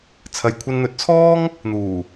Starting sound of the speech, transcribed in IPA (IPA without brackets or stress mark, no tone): t͡sʰ